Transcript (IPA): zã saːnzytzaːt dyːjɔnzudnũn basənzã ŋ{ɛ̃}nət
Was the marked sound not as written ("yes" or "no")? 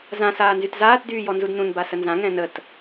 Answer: no